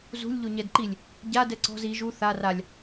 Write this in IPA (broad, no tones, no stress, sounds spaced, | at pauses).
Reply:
z ṳ lʲ ʎ o ɲ ɛ d ǃ i lʲ | ɟ a d ɛ ǀ ɔ̤ z i ʒ u θ a r a lʲ